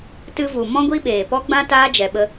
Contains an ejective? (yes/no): no